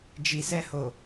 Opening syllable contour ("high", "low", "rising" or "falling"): low